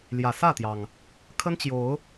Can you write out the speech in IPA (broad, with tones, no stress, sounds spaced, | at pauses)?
l j ä˨˩ s ä˥˨ t̪ j ɑ˩ ŋ | kʰ ə˦ n t͡ɕ j o˨˦ ʊ̯